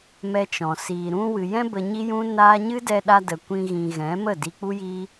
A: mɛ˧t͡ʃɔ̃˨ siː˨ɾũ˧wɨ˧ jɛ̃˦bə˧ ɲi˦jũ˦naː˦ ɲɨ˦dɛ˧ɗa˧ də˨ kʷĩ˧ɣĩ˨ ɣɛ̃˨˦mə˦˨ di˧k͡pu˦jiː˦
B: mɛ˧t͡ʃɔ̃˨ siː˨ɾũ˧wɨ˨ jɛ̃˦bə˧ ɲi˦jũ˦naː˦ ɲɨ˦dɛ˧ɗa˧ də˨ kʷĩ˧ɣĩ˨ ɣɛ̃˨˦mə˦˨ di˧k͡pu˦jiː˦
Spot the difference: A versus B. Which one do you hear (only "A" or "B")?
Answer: B